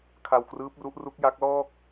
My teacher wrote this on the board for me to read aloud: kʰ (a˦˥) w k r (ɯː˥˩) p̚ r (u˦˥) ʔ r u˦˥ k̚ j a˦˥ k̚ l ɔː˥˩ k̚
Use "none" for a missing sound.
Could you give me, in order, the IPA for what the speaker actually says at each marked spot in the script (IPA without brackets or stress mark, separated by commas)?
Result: a˧, ɯː˦˥, u˦˥